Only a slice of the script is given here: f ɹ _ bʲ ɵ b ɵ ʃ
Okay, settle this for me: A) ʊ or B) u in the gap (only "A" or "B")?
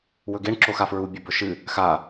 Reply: B